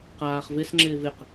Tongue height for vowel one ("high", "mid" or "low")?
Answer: low